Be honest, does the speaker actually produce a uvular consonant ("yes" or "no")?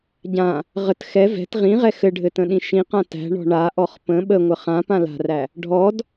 yes